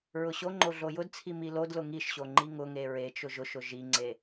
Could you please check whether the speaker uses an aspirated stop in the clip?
yes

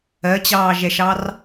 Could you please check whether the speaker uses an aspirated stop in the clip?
no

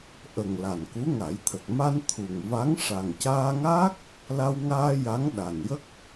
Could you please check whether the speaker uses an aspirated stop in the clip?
yes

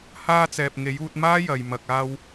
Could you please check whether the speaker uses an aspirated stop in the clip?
no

